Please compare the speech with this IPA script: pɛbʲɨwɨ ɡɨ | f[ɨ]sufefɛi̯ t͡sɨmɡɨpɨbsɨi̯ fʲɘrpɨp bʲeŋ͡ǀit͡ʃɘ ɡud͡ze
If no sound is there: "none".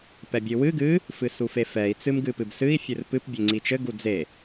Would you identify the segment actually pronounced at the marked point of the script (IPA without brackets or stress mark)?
ɨ